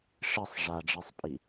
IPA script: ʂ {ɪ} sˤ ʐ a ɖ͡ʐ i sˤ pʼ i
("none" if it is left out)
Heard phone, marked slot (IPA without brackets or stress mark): ɪ